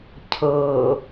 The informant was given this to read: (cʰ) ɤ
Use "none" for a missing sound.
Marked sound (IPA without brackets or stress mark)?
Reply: cʰ